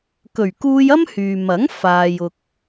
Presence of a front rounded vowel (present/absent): present